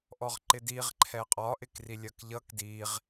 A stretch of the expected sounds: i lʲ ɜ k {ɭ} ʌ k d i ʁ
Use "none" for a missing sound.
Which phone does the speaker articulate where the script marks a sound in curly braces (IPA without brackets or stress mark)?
ʎ